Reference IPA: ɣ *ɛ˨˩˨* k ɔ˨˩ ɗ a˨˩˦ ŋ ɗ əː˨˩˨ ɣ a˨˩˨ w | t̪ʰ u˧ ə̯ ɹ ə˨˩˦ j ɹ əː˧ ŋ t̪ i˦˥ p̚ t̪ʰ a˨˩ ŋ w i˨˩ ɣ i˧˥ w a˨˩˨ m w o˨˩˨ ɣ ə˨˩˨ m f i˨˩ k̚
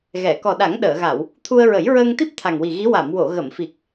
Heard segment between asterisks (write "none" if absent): ɛ˨˩˨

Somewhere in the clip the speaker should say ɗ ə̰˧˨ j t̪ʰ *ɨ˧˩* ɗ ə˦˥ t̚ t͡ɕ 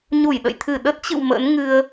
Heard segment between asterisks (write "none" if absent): ɨ˧˩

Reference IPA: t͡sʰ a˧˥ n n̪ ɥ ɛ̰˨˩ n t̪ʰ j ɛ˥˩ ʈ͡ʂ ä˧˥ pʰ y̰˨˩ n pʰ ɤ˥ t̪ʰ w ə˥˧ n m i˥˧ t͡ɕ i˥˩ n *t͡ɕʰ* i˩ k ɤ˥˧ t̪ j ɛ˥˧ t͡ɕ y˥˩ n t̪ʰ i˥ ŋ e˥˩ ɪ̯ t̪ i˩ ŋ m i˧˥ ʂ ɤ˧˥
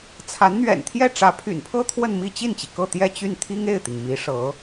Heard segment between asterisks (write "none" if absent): t͡ɕ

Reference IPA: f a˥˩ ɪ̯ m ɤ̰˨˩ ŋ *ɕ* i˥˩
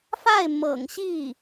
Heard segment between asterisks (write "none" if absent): ɕ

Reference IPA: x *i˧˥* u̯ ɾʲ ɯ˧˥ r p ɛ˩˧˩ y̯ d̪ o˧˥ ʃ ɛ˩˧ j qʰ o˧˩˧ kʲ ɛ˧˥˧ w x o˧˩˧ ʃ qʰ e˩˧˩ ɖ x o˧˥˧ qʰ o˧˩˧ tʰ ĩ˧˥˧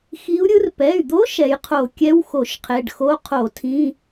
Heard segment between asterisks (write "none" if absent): i˧˥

